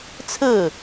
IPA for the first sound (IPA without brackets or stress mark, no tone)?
t͡sʰ